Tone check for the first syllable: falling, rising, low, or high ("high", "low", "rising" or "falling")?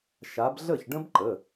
rising